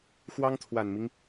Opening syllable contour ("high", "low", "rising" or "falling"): high